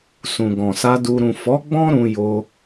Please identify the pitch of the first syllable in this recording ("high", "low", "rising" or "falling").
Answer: low